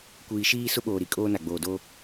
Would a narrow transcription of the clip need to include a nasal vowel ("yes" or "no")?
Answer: no